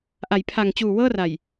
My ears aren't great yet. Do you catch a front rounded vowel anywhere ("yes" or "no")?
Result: no